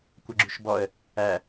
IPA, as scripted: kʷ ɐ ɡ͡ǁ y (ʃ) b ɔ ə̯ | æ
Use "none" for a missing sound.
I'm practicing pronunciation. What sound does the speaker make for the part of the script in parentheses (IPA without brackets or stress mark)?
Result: ʃ